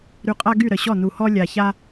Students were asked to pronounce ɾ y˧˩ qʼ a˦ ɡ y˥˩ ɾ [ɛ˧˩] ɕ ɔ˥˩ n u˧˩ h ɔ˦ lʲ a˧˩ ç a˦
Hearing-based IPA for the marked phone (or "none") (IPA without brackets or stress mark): ə˧˩